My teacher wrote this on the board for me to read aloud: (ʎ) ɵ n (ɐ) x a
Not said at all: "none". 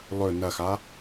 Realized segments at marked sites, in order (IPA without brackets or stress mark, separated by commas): lˠ, ɐ